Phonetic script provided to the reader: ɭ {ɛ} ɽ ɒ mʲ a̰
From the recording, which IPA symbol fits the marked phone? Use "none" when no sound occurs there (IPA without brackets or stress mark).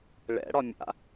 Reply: ɛ̰